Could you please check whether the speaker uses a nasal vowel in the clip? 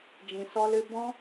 yes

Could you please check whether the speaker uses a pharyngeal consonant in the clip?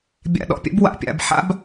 yes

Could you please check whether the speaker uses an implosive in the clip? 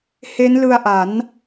no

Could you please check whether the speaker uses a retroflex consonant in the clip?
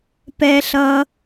no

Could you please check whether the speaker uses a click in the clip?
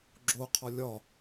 yes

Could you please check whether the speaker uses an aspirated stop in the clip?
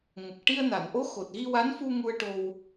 no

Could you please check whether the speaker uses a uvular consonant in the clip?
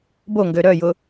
no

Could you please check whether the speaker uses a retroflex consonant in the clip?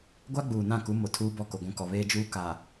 no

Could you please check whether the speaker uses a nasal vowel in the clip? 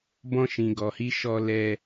yes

